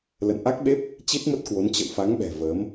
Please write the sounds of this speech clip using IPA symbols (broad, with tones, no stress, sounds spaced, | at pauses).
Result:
l ə̰˧˨ n ʔ a˦˥ k̚ ɓ e˦˥ p̚ | t͡ɕ i˦˥ t̚ m ə˦˥ t̚ k w o˨˦ n t͡ɕ ə̰˧˨ w f a˨˦ ŋ ɓ ɛ̤˨˩ v əː˨˦ m